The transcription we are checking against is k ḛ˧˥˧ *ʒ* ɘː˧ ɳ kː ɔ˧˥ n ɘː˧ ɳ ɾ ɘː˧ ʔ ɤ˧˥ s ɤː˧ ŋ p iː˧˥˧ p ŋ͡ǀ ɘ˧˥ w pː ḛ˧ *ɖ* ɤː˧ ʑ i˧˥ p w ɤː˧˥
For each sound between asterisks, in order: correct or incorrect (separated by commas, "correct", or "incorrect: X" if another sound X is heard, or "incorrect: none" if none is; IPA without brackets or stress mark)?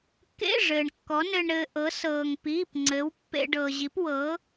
incorrect: ʐ, correct